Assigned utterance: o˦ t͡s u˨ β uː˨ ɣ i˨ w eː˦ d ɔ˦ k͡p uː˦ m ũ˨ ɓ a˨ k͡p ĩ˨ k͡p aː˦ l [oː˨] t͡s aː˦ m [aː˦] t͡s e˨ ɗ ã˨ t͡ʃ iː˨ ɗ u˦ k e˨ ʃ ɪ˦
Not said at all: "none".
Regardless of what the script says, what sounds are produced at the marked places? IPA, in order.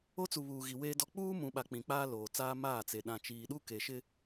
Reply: oː˨, aː˦˨

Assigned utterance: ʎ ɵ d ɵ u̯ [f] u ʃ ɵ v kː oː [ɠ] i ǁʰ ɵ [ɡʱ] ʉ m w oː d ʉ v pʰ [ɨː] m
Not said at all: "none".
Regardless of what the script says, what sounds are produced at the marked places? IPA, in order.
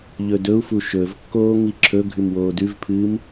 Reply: f, ŋ, ɡʱ, ɨː

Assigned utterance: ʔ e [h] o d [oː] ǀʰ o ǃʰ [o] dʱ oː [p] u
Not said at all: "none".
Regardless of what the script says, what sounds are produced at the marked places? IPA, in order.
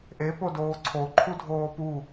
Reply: p, oː, u, p

